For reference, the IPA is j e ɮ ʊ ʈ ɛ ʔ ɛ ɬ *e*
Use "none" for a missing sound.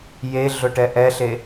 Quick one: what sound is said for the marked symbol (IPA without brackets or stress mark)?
e